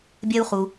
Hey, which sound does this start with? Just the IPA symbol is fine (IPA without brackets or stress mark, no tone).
bʲ